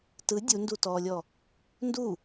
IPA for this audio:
tɯ dʲundutɔːlʲɔ | ndu

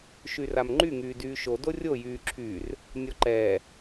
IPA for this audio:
ʃyramŋ͡ǃy ŋyːdyːʃo dorʲo jyːǁʰyːr | nʲɔǃɛː

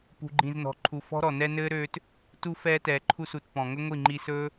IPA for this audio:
pṳ˨ɡ͡ǃĩ˨znɔ̤˨ǃʰu˨ fɔ̤˦ɾɔ˨nɛ˦ nɘː˦ɾøː˧t | tu˧ fɛː˧tɛː˨ǃʰu˧su˨t pɔ̃˨ ŋɵ˦ŋʷi˦˨ ŋ͡ǃi˧sɵː˦

